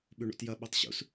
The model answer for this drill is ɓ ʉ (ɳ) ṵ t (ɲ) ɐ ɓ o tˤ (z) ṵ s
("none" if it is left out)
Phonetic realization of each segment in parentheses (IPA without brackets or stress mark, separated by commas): ɳ, j, ɕ